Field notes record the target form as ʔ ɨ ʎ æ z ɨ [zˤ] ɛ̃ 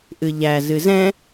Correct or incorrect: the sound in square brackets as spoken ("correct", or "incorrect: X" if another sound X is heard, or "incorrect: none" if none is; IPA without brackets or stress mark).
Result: incorrect: z